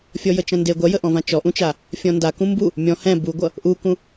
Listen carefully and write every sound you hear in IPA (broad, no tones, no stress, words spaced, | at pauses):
fʲɔjət͡ʃɐ̃nde ɡʷɐjəʔɔ̃vã t͡ʃɔʔũt͡ʃa | fʲɔ̃nda kũmbu | mʲɔ̃ hɛ̃ buɡʷʌ | ʔukũ